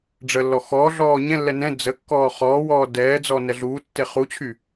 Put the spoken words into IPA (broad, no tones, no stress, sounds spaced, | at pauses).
ɖ͡ʐ ə lː ɔ x ɔ ɮ ɔː ɲ ɛ̃ lː ɛ n ɛ̃ d͡z ə kː ɔː χ ɔː w ɔː d ɛː d͡z ɔ n ɛ ɮ uː tː e χ u t͡ɕʰ y